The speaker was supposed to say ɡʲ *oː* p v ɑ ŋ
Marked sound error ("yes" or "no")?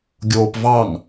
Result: no